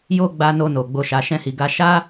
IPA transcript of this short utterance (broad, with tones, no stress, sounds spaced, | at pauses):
j o˦ ɡ͡b a˧ n o˧ n o˨ ɡ͡b o˧ ʃ a˧ ʃ ɛ̃˦ h i˧ ɡ a˧ ʃ a˦